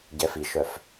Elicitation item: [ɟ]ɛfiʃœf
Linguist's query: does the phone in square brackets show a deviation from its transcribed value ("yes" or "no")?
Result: no